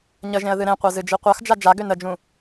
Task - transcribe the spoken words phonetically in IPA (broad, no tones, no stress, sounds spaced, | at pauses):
ɲ ə ʒ ẽ ə̯ ð ɨ ɾ ẽ qʷ a z ɨ d͡ʒ i qʷ a x d͡ʒ a d͡ʒ a ɡ ø n ə d͡ʒ ũ